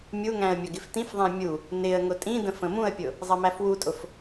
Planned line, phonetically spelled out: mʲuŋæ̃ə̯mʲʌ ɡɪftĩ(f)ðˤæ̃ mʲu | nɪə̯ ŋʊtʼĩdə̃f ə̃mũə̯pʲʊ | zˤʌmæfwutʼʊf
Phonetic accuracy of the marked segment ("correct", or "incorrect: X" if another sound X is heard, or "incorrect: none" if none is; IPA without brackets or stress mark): correct